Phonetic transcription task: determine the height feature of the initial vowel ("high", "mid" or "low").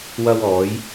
low